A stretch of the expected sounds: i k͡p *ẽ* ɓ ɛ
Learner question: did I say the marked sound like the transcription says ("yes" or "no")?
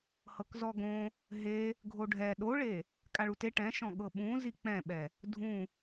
no